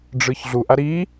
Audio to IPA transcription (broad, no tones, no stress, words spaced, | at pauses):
ɖ͡ʐɯçɮuʔa ɾi